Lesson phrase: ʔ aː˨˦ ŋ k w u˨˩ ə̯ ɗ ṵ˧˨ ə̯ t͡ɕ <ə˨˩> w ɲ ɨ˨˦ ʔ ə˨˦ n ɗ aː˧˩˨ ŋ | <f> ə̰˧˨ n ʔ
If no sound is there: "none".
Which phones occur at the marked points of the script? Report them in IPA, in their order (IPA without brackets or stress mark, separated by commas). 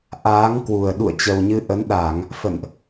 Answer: ə˨˩, f